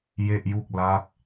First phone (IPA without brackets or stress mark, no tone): j